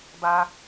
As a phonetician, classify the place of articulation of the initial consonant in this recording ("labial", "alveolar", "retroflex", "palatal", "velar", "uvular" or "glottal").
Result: labial